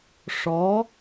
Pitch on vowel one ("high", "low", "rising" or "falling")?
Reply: rising